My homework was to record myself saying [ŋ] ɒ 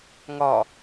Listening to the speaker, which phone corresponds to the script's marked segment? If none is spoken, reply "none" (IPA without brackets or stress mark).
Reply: ŋ